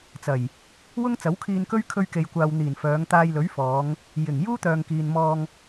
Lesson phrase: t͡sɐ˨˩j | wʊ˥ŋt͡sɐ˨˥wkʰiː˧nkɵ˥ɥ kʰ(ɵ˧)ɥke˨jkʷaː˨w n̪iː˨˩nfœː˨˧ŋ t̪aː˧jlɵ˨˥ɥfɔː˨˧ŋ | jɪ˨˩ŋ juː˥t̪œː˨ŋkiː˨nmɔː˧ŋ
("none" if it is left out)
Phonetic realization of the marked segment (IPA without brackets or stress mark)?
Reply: ɵ˧